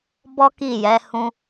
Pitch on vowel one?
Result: high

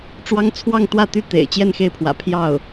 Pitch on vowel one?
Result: high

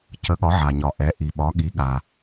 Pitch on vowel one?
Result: rising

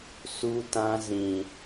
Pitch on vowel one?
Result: high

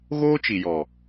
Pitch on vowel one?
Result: high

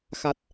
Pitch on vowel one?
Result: low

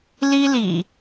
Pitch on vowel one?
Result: high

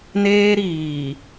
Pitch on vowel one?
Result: high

